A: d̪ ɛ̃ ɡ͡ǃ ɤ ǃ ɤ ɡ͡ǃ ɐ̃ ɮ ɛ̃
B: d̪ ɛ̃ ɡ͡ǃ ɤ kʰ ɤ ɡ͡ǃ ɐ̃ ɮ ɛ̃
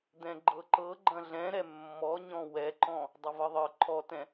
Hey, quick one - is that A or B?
A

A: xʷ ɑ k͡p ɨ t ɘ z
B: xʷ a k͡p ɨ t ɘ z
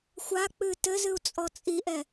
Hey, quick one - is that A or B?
B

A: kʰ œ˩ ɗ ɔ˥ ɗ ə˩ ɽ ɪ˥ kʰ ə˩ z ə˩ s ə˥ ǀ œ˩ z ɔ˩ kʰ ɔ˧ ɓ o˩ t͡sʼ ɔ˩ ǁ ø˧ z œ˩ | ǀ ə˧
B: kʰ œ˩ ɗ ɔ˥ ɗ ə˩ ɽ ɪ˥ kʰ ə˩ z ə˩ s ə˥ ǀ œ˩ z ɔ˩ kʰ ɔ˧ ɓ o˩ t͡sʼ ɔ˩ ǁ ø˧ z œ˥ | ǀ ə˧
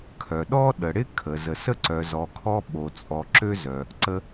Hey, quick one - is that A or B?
A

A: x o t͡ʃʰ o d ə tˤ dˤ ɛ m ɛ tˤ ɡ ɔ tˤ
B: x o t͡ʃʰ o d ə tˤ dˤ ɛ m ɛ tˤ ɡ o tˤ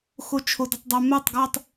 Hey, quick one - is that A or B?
A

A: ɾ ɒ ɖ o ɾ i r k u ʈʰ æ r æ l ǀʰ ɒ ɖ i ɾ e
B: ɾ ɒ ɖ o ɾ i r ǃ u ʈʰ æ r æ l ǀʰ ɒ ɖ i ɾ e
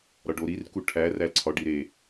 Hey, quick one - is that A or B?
A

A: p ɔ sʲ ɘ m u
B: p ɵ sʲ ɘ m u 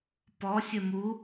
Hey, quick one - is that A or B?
A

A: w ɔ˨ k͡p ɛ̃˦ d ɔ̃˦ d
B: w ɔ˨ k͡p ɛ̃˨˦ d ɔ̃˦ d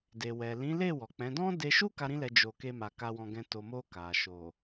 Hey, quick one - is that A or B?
B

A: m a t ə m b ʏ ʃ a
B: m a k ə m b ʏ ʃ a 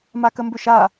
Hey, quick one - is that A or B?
B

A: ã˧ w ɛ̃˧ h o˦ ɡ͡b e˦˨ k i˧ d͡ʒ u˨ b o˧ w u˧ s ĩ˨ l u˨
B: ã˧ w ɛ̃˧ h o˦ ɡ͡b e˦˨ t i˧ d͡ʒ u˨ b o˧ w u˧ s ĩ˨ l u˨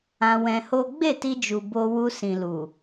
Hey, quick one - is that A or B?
B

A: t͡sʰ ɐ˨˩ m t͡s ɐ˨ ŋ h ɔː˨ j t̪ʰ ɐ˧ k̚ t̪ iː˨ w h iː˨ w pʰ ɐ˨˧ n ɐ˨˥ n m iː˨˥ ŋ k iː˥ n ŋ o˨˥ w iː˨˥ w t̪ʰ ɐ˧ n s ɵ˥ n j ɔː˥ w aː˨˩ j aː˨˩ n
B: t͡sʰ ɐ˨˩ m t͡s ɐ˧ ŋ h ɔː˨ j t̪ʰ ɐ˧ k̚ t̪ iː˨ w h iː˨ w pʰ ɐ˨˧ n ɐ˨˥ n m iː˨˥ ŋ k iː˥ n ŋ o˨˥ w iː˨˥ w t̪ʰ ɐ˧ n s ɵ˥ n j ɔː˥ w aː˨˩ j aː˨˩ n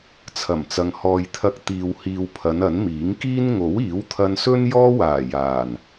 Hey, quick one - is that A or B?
A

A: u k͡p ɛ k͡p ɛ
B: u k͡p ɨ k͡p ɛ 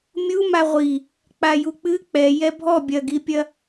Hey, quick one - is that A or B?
B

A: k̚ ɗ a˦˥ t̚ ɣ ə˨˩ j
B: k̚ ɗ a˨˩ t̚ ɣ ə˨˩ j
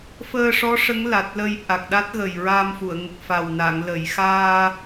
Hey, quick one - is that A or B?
A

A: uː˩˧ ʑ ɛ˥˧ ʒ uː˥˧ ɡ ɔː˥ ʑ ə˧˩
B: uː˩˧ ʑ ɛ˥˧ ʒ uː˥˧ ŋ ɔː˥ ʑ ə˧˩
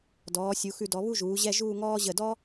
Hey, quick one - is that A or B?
B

